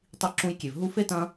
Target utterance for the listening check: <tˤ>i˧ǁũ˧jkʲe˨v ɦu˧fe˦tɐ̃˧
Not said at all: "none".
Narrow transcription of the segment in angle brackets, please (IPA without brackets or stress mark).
tˤ